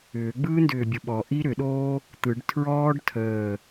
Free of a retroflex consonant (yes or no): no